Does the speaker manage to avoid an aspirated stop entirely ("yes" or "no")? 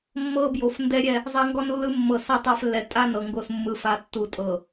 yes